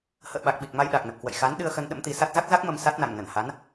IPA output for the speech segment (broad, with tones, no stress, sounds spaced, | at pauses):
h ə̰ː˧˨ ɓ a˨˩ k̚ ɓ i˨˩ k̚ m a˧ j ɗ a˨˩ k̚ n ə˨˩ p̚ k w ə̰˧˨ j x a˨˦ n ɗ ɨ˧ ə̯ x ə˧ n ɗ ə̰˧˥ m t̪ i˨˦ s a˦˥ t̚ z a˦˥ k̚ z a˦˥ k̚ m ə˧ m s a˦˥ t̚ n a̰˧˨ ŋ n ə˧˩ n h a˨˦ n